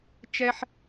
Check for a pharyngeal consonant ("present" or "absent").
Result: present